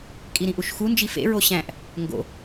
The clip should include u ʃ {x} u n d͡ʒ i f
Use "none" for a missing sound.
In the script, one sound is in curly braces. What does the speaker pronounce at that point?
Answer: x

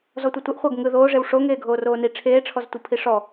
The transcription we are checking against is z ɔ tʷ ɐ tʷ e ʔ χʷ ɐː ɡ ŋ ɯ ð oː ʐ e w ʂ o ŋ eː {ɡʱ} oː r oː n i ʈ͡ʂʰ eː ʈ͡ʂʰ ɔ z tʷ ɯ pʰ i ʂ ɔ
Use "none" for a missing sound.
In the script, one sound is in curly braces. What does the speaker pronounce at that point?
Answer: ɡʱ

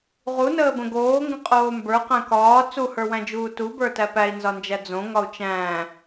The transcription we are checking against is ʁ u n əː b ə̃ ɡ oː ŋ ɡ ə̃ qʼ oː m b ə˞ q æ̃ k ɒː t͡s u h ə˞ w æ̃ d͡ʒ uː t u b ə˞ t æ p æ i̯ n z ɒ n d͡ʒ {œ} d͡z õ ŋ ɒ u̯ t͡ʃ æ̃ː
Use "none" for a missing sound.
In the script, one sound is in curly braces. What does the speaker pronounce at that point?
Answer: æ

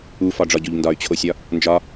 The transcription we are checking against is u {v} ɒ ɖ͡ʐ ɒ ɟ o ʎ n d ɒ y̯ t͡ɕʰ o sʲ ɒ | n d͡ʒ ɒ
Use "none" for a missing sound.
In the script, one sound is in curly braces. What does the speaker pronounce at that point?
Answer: f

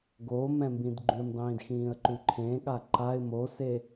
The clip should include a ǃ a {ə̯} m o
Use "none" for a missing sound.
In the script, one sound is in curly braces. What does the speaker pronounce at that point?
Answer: ɪ̯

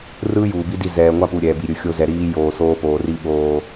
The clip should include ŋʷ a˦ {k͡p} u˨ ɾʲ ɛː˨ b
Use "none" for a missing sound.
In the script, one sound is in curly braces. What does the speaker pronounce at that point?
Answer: p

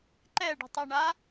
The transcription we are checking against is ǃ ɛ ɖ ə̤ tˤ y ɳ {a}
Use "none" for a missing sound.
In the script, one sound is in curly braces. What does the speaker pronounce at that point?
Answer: a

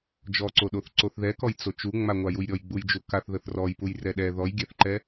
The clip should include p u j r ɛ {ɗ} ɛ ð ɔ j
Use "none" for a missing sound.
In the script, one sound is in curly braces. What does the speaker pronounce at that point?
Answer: ɗ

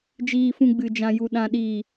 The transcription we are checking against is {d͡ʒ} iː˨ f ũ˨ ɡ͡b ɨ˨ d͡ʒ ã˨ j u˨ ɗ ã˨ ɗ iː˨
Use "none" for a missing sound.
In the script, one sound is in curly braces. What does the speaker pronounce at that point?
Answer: d͡ʒ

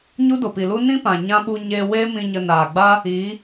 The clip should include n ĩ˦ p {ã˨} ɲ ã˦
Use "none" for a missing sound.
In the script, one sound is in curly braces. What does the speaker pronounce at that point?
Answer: ã˨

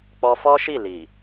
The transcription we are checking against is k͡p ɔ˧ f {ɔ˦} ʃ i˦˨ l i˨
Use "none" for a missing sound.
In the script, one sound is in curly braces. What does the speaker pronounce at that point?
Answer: ɔ˦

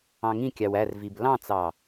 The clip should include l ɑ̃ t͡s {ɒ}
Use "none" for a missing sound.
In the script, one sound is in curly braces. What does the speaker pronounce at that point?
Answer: ɑ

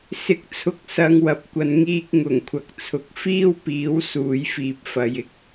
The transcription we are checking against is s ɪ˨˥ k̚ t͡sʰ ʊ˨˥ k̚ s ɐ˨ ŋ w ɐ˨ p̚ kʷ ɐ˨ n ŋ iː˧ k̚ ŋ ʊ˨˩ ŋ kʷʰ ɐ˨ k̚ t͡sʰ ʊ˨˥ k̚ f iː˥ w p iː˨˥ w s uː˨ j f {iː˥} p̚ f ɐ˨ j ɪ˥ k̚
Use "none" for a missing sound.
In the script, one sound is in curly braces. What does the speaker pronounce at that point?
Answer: iː˨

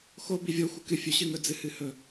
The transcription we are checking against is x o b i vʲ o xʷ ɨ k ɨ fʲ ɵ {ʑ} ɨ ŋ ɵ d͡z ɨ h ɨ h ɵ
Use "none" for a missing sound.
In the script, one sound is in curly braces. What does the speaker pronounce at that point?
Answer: ɕ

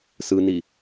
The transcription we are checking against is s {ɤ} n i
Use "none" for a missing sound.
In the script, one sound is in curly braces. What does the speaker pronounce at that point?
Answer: ɯ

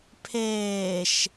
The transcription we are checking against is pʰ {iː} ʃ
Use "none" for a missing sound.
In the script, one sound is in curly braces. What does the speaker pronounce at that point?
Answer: eː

